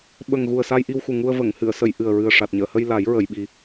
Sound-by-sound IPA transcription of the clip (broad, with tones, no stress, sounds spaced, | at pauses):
ɓ ə˨˩ ŋ ɣ u˨˩ ə̯ s a˧ j ʔ i˧ w x u˨˩ ŋ u˧ ə̯ v ə˨˩˨ ŋ h ɨ˨˩˨ ə̯ s ə˨˩˨ j ʔ ɨ˨˩ ə̯ ɹ ɨ˨˩ ə̯ ʂ a˨˩ t̚ ɲ əː˨˩˨ h ə˧ j l a˨˩˦ j ɹ ə˨˩˨ j ɓ i˨˩˦